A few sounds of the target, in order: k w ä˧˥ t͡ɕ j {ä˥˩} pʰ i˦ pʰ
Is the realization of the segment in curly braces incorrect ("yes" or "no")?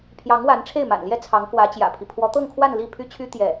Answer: yes